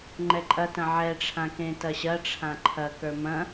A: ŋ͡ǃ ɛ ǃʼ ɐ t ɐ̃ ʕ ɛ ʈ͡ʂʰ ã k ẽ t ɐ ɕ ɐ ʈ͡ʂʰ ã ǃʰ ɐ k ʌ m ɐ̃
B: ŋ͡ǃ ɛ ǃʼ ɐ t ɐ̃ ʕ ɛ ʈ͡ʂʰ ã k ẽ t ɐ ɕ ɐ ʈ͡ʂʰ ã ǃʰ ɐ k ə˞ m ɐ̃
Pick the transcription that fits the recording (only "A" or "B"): B